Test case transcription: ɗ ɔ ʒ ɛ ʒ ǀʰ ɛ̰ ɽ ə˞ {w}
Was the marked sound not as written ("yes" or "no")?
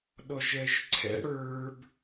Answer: yes